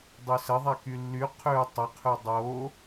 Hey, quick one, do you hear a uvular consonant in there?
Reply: yes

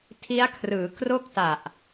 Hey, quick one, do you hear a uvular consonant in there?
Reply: no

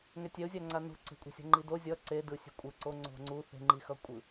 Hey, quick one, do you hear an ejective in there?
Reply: yes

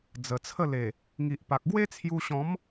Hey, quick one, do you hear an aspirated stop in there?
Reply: yes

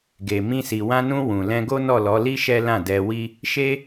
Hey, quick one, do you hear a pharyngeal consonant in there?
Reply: no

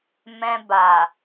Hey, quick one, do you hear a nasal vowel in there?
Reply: yes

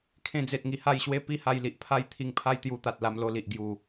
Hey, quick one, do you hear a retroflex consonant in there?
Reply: no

